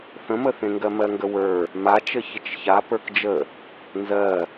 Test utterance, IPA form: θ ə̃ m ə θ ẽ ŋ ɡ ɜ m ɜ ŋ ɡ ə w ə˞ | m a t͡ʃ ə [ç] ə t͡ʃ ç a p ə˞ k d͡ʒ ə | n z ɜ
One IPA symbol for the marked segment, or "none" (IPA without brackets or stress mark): ç